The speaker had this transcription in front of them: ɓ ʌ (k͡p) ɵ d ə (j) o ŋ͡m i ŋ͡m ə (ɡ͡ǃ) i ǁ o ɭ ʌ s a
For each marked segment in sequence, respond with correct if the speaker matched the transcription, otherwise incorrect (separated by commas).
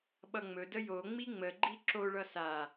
incorrect, correct, correct